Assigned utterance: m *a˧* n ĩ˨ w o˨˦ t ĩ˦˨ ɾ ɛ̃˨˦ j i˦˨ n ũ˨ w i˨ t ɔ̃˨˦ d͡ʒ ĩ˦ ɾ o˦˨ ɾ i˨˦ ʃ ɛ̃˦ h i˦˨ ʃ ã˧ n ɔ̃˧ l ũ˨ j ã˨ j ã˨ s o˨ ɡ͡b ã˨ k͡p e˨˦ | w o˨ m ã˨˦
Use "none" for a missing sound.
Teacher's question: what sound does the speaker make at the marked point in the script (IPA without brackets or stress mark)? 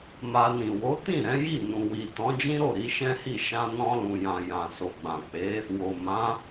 a˧